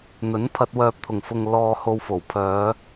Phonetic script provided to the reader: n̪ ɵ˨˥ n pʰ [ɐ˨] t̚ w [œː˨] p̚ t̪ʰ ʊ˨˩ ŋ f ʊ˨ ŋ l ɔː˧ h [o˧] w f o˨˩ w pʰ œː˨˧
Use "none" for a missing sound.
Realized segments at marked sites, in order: ɐ˧, œː˨, o˧

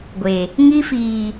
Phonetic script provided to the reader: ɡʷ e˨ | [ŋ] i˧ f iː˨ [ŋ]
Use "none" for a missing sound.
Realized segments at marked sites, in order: ŋ, none

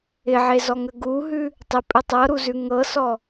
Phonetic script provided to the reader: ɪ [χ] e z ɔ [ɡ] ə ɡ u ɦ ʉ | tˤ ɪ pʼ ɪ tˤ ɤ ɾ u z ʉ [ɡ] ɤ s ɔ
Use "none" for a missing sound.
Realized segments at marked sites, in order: ʕ, ŋ, ŋ

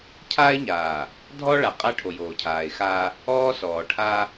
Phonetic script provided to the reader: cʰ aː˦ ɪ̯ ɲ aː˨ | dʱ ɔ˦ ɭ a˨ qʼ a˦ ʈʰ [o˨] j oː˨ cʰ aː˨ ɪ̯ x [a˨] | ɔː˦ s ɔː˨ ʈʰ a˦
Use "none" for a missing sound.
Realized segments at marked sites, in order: o˨, a˦

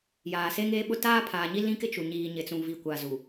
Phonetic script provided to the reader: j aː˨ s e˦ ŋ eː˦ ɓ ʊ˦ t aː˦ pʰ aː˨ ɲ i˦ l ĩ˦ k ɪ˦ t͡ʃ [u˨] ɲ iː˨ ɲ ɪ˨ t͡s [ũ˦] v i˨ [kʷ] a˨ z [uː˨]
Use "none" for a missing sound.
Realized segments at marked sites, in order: u˨, ũ˨, kʷ, u˨

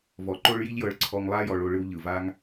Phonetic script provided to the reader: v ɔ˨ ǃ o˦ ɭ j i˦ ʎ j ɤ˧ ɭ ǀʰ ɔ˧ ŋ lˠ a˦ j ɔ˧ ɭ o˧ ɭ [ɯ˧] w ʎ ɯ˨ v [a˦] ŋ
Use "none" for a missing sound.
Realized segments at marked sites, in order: ɯ˧, a˦

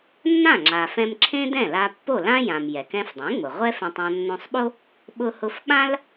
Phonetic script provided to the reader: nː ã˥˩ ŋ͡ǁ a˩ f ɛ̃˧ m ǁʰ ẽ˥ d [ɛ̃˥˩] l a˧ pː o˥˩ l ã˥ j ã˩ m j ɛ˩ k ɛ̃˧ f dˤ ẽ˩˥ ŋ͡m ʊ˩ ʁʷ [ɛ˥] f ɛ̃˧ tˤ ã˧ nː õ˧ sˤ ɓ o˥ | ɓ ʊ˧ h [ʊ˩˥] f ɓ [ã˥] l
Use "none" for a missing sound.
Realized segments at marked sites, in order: ɛ̃˥˩, ɛ˥, ʊ˧, ã˥

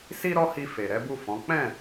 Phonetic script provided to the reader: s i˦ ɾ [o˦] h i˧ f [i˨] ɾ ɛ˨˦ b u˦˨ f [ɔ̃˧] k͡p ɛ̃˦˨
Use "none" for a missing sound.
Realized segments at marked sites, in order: ɔ˦, e˨, ɔ̃˨˦

